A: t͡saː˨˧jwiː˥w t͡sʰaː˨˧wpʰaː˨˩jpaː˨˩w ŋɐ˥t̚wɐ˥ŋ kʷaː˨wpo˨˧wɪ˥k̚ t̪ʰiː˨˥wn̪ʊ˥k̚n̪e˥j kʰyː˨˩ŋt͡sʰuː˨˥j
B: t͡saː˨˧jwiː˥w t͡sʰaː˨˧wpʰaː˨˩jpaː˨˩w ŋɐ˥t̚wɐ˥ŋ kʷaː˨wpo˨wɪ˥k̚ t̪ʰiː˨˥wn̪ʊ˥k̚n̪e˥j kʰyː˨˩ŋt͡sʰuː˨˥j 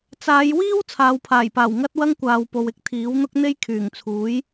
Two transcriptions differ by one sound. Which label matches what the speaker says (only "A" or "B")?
B